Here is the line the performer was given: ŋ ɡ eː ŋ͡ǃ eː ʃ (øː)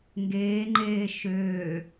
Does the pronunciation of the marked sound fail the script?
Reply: no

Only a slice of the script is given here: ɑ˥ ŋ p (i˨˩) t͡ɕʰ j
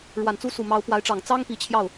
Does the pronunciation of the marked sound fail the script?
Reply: no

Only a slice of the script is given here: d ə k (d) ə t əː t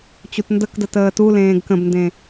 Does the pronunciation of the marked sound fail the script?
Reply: no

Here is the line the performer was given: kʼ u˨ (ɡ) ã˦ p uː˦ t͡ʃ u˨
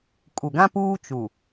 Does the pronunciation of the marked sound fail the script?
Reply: no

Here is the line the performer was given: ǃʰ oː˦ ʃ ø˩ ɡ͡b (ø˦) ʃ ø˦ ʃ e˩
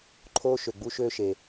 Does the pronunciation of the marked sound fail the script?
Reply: yes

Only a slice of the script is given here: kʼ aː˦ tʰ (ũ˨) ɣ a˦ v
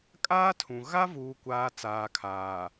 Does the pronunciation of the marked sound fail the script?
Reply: no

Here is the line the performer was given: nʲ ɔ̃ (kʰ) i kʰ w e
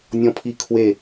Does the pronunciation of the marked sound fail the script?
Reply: yes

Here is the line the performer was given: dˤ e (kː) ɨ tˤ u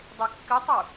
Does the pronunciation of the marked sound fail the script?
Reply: no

